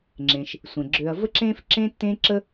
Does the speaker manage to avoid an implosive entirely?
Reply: yes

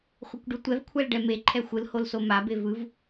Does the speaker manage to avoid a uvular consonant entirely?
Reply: no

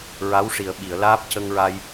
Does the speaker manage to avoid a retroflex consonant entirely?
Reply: no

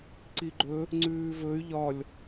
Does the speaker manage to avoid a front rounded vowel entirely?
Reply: no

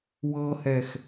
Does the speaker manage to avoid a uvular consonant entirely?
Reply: yes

